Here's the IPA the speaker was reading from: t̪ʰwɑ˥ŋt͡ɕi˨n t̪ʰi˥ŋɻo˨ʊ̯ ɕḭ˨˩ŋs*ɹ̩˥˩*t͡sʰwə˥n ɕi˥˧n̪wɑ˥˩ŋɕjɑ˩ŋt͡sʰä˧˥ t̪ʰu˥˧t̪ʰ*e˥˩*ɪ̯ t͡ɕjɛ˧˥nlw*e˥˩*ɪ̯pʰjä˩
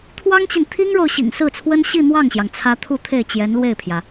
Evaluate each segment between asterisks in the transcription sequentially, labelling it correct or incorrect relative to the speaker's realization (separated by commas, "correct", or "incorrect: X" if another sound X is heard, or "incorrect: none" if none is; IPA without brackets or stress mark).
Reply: correct, correct, correct